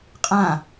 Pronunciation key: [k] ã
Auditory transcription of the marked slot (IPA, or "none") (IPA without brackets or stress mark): qʼ